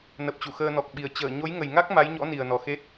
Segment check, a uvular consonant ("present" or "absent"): absent